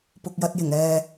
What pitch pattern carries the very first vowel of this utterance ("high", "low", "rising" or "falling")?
low